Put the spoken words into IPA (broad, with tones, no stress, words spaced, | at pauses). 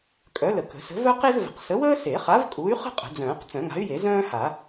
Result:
kʼœ˨˥lə˨˩˦ kə̤˨˩˦sə̤˨˥ vœ˥qe˥zvə̤˨˩˦q sə˨˥wəː˥se˨˩˦χa˨˥v kʼu˨˥y̯χə̤˥ qʼə̤˨˩˦d͡zœ̃ː˨˩˦q t͡sœ̃˨˩˦ŋa̤˨˥y̯je˨˩˦ zœ̃ː˥ha˨˩˦